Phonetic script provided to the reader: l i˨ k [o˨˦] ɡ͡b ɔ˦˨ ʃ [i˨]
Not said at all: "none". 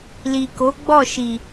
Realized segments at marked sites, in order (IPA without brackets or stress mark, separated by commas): o˨˦, i˨